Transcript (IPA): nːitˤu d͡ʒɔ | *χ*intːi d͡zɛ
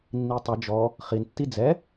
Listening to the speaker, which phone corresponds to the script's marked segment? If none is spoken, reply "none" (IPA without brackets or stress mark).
χ